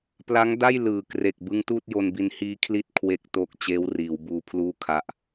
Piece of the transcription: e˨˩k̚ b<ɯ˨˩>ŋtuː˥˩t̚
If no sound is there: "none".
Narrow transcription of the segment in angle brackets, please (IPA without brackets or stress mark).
ɯ˦˥